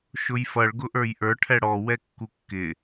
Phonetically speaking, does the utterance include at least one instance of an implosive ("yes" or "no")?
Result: no